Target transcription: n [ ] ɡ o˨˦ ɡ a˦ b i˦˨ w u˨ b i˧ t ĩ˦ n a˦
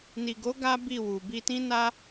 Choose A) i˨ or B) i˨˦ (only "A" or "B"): A